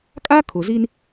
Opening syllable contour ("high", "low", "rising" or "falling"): high